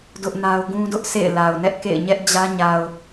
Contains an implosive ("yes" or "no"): no